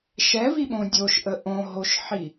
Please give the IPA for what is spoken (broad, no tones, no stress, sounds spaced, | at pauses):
ʃ ɛ v i ɓ õ dʲ o ʃ ʔ ə ʔ õ ɦ o ʃ ħ i